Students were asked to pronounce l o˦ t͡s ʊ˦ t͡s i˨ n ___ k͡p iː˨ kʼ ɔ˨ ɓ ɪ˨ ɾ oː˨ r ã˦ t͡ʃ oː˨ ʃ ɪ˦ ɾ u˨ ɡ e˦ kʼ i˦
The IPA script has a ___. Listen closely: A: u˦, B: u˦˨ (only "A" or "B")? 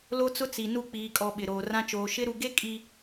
B